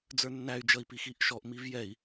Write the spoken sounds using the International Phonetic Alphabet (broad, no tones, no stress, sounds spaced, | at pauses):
d͡z ə˞ nː æ y̯ d͡ʒ ʌ i̯ p i x i ʔ ʃ ɔ ʔ m i v j ɛ i̯